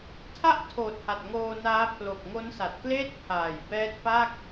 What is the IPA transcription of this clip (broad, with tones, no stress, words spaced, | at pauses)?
tʰa˥˩ʔtʰoː˨˩t̚ ha˨˩t̚ŋoː˧naː˦˥ pʰlo˨˩k̚ŋo˦˥nsa˨˩t̚kleː˥˩t̚ pʰaː˨˩jbɛː˦˥t̚pa˥˩k̚